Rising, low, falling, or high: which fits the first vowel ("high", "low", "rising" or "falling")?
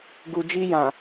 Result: low